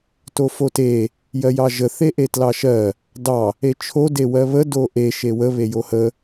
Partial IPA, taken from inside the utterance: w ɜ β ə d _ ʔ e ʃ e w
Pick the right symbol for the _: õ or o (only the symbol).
o